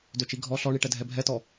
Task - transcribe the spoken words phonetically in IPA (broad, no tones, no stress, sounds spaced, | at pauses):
d ø t͡ʃ i ɡʱ ɔ ɬ ɔ ɳ i ʈ ɛ dʱ ɛ bʱ ɛ t ɔ